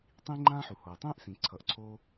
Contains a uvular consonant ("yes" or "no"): no